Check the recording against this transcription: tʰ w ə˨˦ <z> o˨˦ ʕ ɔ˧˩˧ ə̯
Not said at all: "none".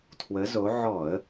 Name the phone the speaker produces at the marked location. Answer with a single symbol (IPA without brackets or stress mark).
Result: z